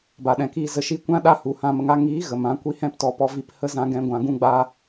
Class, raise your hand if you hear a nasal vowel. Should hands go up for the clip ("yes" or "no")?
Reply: yes